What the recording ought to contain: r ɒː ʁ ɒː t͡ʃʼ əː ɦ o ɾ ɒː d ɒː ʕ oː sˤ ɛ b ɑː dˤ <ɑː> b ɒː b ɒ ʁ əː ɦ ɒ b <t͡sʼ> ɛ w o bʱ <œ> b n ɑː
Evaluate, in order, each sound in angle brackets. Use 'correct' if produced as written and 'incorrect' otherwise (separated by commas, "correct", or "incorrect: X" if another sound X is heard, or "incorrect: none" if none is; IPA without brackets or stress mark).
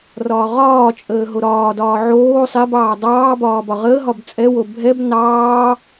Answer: correct, correct, incorrect: ɛ